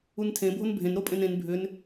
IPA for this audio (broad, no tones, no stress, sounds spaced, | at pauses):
u n tʰ ẽ bʱ o n bʱ ẽ n ɾ o pʼ ẽ n ẽ n bʱ ʏ n